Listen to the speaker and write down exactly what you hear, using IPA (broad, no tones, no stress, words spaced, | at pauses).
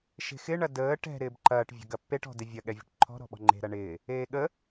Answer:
ʃe̤xɪɳɐ dəː ʈɛ̤ ɾɪːbǃɐːʈvʲə̤ ɡɐpːeʈɔ̤dɪ vʲɐɠɛvʲə̤ʈ ǃʰɔ̤ɾɔ̤ɓɔ̤ ŋ͡ǃe̤ ɾɐɳɪː | eːɠə